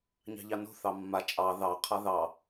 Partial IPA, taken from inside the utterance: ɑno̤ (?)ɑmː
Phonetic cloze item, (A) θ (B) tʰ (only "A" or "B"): A